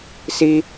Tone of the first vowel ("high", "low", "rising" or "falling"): high